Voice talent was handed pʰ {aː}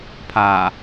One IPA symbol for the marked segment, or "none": aː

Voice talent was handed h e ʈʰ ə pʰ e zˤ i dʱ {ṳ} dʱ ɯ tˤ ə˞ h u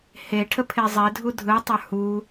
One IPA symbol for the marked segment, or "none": u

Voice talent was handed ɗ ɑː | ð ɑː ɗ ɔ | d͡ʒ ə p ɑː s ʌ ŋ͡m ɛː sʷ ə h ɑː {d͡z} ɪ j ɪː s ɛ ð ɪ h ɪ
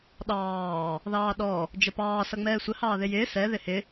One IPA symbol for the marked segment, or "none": ð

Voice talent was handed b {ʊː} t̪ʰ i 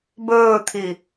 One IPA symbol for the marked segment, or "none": ɵː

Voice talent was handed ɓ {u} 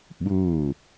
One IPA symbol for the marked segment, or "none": u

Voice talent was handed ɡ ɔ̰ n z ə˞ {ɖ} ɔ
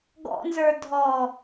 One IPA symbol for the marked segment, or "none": dʱ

